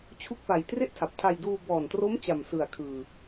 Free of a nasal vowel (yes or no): yes